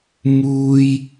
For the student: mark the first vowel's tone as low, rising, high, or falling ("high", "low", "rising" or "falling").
high